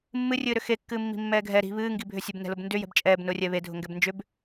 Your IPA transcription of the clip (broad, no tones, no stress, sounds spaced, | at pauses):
mː ɨ rʲ ɨː ɾ ʏ x e kː ɨː mː i̤ mː ɛː ɡʱ ɛ ɾ i̤ β ɨː ŋ ɡ i bʱ ʏ sʲ ɛ b n ɛ̤ l ʊ b n d ʏ j ɛ̤ b t͡ʃʼ ɛː b n ʊː rʲ ɛ β e dʱ ʊ ŋ ɡ ɛ b n d͡ʒ ʏ b